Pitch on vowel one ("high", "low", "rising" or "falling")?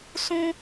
high